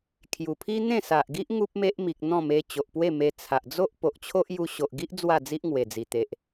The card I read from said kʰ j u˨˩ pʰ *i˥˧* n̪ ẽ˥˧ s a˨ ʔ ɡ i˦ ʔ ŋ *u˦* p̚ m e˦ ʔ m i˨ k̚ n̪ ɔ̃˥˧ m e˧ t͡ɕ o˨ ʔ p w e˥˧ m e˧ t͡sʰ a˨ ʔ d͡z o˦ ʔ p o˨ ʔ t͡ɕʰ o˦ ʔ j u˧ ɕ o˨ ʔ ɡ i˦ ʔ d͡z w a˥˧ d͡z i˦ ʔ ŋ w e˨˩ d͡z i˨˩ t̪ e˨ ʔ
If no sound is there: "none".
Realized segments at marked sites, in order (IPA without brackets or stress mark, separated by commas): i˦, u˦